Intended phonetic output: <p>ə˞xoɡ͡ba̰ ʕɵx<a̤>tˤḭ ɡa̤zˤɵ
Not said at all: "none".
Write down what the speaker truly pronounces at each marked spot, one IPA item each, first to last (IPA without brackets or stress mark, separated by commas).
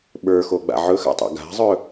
ɓ, a̰